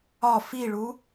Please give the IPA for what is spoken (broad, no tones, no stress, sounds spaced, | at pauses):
ɒ f i ɭ u